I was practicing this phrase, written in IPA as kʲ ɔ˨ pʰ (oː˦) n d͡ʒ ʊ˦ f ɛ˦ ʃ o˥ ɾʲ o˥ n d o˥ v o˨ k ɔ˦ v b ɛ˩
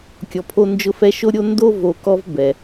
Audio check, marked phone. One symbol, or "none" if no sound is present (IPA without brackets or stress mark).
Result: o˦